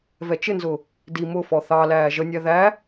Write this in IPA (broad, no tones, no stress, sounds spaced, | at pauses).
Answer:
v ɛ t͡ʃ ɪ n z ʊ | d i m ʊ f ɔ θ ɑ l æː ʒ ə nʲ æ ð æ